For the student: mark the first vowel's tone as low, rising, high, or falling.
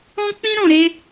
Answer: high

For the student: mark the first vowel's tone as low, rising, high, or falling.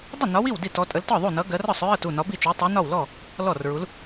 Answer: falling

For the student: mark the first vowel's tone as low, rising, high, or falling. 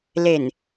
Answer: low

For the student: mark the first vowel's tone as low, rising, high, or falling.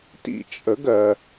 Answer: falling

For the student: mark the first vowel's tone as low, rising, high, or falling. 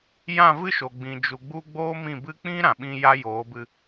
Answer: falling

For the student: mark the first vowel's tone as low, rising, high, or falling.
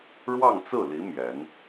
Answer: falling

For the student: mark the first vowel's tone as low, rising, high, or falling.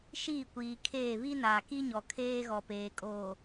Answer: falling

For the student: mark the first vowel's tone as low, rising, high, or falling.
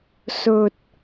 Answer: low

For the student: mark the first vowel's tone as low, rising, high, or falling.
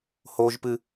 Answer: high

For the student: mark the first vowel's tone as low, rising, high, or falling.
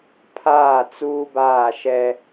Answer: falling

